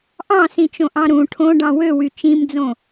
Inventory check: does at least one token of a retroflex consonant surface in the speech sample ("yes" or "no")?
yes